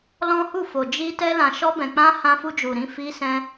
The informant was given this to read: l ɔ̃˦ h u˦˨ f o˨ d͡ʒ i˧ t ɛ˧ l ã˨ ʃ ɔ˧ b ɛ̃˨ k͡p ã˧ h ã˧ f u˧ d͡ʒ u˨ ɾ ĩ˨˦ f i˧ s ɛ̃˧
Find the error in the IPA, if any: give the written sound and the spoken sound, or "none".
none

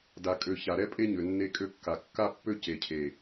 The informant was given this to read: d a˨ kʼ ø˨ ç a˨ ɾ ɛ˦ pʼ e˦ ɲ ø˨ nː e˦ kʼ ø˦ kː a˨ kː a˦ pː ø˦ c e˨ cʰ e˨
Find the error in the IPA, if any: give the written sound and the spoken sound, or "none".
none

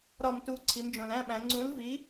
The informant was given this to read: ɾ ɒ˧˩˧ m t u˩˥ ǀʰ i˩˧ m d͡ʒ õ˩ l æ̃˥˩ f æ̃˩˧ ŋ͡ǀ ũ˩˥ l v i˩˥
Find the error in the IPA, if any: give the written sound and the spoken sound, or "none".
f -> ɓ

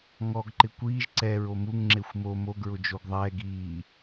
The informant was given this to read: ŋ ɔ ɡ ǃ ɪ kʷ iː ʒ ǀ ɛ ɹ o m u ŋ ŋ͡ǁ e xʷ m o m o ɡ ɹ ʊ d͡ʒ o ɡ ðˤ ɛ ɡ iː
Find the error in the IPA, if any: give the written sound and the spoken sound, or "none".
none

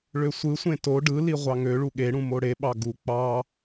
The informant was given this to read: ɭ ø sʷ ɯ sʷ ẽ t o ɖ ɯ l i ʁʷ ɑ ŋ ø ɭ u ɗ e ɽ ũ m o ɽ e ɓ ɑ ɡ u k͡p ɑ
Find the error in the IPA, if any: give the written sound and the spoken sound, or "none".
ɗ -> ɠ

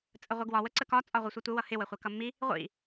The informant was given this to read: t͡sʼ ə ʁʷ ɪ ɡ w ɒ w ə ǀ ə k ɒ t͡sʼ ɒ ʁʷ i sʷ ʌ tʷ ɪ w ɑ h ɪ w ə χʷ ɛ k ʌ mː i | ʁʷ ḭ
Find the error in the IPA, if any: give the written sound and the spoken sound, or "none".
ɑ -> ʌ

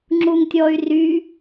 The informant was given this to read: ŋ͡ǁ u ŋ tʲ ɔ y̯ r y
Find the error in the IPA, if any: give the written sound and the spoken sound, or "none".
none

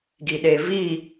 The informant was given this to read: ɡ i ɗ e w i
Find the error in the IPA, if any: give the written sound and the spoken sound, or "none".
w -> v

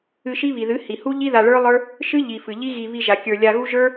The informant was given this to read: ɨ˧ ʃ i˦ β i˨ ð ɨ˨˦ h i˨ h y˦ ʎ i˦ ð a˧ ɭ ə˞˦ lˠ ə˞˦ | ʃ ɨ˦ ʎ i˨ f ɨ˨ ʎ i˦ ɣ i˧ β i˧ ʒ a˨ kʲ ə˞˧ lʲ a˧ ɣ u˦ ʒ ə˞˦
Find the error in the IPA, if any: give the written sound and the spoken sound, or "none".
y˦ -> u˦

